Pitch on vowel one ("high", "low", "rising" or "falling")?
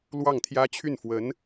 falling